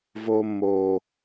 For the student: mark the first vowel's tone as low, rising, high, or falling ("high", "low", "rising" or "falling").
high